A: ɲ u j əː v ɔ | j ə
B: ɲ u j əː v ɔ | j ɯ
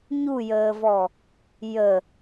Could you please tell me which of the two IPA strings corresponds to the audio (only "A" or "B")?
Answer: A